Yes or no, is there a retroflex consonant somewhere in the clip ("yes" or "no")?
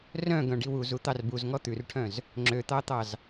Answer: yes